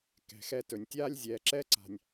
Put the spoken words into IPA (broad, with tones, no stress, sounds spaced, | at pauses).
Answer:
k ɛ̤˨ x ɛ˦ t ɵ˨ nʲ tʲ aː˥ lʲ zʲ ɛː˨ ǁ ɛ˥ ǀ a̤˨ nʲ